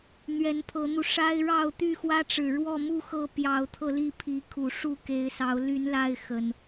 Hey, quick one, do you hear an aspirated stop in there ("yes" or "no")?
yes